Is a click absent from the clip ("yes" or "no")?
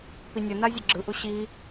no